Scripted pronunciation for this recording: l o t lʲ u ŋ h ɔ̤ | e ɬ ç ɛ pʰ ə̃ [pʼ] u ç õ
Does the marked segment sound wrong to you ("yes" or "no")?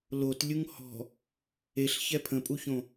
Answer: no